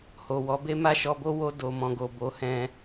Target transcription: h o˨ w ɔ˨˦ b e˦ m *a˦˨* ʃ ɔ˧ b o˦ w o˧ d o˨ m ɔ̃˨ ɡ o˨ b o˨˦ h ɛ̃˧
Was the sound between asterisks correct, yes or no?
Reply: yes